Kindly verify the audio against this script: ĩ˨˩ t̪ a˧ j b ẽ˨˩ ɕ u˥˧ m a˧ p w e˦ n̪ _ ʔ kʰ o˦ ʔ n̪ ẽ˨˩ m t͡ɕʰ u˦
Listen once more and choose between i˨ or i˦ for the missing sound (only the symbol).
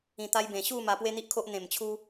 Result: i˦